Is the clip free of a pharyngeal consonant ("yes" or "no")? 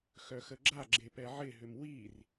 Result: no